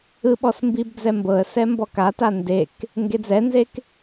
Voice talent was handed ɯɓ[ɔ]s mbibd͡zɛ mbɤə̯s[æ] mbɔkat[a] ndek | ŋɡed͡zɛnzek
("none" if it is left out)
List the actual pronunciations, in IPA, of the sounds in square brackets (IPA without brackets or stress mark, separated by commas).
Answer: ɔ, ɛ, a